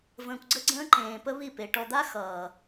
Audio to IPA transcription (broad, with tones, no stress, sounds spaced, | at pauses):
v ə̃ː˨ kʷ ɡ͡ǀ ə˦ ɡ͡ǀ ə̃ː˦ ǃ ẽː˨ p ə˦ β i˦˨ p e˨ ʈ ɔ˨ d̪ a˦ x ʌː˨